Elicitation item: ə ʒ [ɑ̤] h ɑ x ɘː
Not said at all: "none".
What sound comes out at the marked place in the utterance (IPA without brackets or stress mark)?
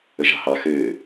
ɑ̤